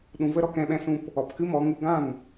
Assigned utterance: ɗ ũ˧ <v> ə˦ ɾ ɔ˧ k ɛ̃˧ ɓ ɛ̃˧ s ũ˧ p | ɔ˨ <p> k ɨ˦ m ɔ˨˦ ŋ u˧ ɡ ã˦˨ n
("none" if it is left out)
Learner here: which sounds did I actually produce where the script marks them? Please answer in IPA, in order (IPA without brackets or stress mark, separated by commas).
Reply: v, p